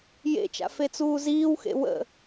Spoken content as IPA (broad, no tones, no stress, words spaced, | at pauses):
jḛt͡ʃa̰ fet͡suːziːwxḛ wə̰